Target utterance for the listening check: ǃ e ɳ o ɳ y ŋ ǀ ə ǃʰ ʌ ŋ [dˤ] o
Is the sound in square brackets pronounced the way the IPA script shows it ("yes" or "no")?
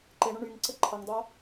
yes